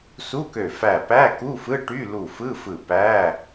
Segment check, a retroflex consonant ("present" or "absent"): present